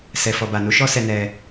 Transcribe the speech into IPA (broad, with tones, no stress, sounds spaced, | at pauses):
s ɛ˨ f ɔ˨ b a˨ n u˨˦ ʃ ɔ˦ s ɛ˧ n ɛ˧